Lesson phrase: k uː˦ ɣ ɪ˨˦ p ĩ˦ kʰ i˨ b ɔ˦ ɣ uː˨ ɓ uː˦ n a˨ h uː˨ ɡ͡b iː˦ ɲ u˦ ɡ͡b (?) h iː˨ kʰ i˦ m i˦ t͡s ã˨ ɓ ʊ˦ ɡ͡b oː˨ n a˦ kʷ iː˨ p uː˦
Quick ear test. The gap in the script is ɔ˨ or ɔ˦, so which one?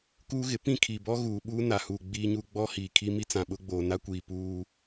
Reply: ɔ˦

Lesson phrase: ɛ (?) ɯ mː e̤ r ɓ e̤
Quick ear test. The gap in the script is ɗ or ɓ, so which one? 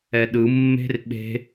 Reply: ɗ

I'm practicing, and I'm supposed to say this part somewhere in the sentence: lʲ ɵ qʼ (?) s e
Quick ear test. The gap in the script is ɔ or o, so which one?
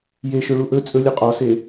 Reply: ɔ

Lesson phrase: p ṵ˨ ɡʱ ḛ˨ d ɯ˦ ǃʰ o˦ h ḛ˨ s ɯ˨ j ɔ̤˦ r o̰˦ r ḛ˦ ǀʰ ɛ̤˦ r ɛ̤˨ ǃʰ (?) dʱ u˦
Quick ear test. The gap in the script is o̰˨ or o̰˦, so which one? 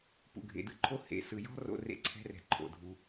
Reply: o̰˨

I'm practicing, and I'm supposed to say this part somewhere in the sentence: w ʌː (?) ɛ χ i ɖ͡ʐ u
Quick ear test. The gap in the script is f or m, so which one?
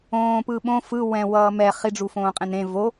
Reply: m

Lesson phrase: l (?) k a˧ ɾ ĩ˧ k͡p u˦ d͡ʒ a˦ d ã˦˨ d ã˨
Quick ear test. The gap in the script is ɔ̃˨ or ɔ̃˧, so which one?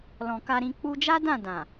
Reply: ɔ̃˨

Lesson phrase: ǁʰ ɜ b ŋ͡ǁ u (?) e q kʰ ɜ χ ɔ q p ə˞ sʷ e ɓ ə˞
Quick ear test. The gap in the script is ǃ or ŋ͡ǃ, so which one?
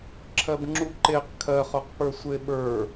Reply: ǃ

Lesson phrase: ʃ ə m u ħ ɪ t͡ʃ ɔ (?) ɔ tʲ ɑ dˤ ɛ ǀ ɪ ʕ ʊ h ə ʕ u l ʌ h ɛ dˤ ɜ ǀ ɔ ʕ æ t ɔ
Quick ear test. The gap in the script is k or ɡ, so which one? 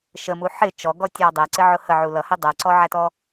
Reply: ɡ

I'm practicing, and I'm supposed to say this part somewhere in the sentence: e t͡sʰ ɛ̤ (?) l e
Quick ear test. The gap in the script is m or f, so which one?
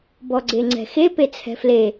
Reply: f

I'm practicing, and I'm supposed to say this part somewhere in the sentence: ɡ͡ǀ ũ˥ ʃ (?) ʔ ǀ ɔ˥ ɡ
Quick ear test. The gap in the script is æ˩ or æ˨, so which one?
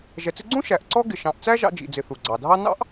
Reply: æ˨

